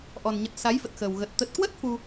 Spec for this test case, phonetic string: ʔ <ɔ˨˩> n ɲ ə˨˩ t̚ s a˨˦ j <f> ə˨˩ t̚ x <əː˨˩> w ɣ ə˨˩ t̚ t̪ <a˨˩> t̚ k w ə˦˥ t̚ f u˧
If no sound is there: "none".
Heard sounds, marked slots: ɔ˨˩, f, əː˨˩, ə˨˩

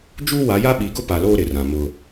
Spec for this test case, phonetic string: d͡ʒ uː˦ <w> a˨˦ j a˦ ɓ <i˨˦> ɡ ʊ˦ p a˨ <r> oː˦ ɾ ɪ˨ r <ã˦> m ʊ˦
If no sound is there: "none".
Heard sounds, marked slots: w, i˨˦, l, ã˨

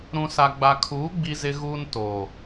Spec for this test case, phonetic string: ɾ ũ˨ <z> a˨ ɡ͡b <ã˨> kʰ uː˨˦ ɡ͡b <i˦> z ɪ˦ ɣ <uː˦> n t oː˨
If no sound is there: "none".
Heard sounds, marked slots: s, a˨, i˦, uː˦

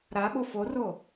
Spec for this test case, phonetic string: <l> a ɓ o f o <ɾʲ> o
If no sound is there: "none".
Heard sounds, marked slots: ɾ, r

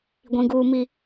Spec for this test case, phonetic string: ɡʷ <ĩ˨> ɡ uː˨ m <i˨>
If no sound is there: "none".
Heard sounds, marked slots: ĩ˨, i˨

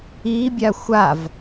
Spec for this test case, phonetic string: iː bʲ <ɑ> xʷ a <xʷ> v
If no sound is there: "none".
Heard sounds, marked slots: a, none

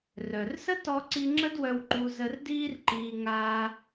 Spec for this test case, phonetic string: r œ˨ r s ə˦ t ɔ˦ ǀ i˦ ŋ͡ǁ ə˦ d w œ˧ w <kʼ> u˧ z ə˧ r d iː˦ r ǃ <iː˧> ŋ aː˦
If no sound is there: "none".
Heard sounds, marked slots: ǃ, iː˧

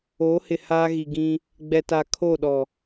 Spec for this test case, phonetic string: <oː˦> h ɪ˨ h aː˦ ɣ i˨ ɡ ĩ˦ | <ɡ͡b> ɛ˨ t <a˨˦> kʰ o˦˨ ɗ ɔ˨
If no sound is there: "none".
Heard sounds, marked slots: oː˨˦, ɡ͡b, a˨

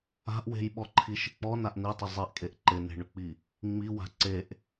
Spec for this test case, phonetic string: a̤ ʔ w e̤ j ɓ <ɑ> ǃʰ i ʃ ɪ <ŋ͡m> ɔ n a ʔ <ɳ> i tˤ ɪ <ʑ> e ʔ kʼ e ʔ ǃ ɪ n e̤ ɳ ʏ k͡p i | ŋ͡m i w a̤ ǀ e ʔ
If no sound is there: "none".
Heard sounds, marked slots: ɔ, k͡p, n, zˤ

